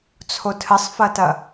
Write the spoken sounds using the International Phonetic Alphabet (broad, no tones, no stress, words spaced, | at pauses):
t͡sʰotʰɘsˤfɐtɐ